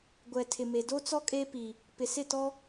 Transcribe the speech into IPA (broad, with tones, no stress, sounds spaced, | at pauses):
ɡʷ ɛ˨ tʰ ɪ˨ m e˨ d o˦ t͡s ɔ˦ kʼ e˦ p i˨ | p ɪ˨ s ɪ˦˨ t ɔ˦